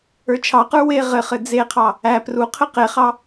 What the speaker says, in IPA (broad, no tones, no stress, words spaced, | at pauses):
ə˞t͡ʃʰɑqə˞ we ʁɘχɘ d͡zeqʰɑ | æ pruqʰɘ qeχɑ